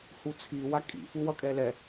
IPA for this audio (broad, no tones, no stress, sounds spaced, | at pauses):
h u t͡sʰ i w a kʼ ḭ f u w ʌ kʼ ɛ l ɛ